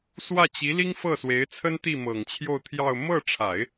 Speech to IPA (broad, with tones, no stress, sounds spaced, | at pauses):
s w ä˥˩ t͡ɕ i˧˥ l i˥ ŋ f ɤ˥˩ s w e˧˥ ɪ̯ t͡sʰ ə˥ n t̪ i˥˩ m ɤ˨˩ ŋ t͡ɕʰ j o˥˧ ʊ̯ t̪ʰ j ɑ˥˧ ʊ̯ m ɤ˥˩ ʈ͡ʂʰ a˨˩˦ ɪ̯